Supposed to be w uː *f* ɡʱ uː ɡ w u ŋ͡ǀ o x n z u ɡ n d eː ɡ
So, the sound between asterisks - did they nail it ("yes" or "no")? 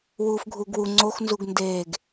yes